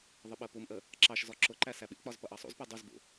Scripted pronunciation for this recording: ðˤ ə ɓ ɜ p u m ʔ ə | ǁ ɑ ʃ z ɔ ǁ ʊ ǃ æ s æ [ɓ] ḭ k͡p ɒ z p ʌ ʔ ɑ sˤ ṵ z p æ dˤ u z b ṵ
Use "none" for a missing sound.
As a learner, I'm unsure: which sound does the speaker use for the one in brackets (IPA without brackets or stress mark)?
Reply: ɓ